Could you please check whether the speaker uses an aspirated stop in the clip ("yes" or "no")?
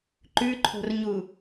yes